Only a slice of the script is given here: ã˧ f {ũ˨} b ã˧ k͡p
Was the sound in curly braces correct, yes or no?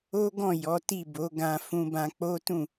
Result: no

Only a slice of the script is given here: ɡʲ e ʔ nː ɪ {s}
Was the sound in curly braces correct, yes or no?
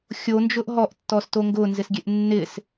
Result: yes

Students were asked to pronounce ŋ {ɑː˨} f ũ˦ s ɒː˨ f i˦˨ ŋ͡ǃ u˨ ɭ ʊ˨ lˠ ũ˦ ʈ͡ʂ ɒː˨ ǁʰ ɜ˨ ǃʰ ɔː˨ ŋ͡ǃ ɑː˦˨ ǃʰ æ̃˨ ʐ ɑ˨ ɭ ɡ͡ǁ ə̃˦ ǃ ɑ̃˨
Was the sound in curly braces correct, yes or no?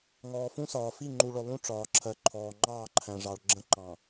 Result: no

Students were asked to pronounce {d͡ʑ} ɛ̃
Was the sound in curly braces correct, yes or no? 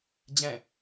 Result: yes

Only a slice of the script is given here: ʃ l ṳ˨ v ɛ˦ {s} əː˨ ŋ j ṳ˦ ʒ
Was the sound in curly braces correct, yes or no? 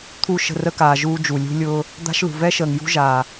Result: no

